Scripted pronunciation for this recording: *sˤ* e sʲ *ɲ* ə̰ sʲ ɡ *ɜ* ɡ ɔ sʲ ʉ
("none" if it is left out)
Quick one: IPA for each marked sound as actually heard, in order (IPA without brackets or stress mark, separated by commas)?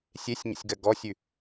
sʲ, ɲ, ɜ